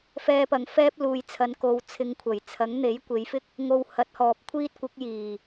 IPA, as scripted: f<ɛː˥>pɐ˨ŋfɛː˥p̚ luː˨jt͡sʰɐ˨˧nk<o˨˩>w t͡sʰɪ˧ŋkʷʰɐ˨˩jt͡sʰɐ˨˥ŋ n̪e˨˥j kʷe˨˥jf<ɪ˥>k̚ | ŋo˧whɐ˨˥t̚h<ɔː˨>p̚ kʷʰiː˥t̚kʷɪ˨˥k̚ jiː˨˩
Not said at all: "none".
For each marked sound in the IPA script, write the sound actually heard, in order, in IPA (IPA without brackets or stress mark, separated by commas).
ɛː˧, o˨˧, ɪ˥, ɔː˨